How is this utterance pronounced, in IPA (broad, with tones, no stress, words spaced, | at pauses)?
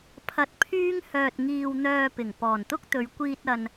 pʰɐ˧t̚pʰyː˥ŋ hœː˧t̚ŋiː˧wn̪œː˧pɪ˨˩ŋ pɔː˨˩nt̪ʊ˥k̚t̪ɵ˨˧ɥ kʷiː˧t̚ ɐ˧n